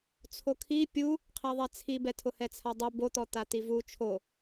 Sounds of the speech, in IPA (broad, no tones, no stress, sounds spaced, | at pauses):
t͡sʰ o kʰ i pʲ u | qʰ e ðˤ ɛ t͡sʰ i b ɛ tʰ ʊ h ɛ t͡sʰ a dˤ ʊ b o t̪ ɔ t̪ a t̪ i v u t͡ʃʰ o